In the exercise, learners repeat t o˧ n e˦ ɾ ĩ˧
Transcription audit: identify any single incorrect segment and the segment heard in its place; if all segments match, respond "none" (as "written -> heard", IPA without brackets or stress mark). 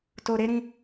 n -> ɾ